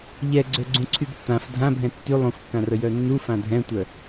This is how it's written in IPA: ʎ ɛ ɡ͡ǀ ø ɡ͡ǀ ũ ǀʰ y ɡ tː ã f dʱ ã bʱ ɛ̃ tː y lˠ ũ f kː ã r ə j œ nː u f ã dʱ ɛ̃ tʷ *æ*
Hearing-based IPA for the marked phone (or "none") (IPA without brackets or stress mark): œ